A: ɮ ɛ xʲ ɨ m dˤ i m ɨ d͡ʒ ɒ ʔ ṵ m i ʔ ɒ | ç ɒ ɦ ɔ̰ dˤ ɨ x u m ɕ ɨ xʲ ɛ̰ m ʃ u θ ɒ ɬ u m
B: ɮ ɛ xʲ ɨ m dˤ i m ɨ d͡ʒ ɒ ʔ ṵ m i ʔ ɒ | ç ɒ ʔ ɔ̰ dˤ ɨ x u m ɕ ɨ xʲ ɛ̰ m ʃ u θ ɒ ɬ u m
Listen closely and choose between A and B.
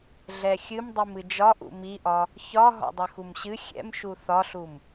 A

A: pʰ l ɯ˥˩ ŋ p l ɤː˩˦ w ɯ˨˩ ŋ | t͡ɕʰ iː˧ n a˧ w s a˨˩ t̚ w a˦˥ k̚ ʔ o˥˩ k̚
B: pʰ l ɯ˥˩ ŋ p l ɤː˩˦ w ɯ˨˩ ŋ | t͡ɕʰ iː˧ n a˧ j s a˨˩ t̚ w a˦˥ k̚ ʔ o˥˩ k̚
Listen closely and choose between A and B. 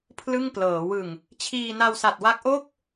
A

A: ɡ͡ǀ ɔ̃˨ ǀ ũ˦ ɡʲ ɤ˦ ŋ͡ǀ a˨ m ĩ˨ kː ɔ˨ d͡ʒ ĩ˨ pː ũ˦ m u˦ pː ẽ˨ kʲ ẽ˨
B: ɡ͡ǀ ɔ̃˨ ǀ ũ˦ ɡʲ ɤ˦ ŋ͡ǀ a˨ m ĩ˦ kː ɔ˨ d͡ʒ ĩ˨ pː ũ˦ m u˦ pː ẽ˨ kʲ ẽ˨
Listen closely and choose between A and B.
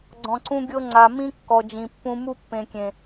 B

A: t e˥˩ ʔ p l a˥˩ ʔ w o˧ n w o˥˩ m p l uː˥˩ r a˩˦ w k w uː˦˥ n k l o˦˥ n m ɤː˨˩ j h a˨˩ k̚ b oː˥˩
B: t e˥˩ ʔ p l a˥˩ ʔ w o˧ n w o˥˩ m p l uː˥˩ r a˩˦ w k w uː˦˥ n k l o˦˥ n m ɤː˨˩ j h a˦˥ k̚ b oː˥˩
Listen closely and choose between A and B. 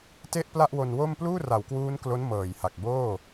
A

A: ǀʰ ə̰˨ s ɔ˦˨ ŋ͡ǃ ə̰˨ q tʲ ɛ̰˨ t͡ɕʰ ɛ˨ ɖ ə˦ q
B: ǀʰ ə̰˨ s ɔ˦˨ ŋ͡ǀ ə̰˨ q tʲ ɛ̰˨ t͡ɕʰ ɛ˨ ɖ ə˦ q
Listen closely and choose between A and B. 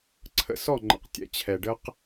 A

